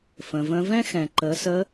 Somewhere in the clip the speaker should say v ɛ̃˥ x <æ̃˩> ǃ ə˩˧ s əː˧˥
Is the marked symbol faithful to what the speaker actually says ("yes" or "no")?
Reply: no